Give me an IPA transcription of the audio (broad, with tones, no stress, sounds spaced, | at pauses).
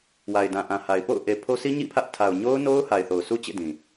w a˨ ɪ̯ d ã˨ ʔ ã˨ h a˨ ɪ̯ p o̰˦˨ ʊ̯ ʔ e˨ pʰ o˦ s i˦ ɲ ḭ˦˨ pʰ ä˦ ʔ tʰ a˨ ʊ̯ ɲ o˦ ʊ̯ n o˦ ʊ̯ h a˨ ɪ̯ θ o˨ ʊ̯ s u˦ t͡ɕ ḛ˦˨ d ĩ˨